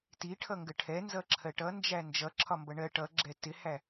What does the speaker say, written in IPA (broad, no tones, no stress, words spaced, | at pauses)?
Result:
tiʈʰʌŋɡə ʈʰɛnzʌǁʰɜ ʈʌnd͡ʒæ nd͡ʒʌǁʰɒmbʌ ɳɜ ʈʌɡ͡ǁɛ tɪhæ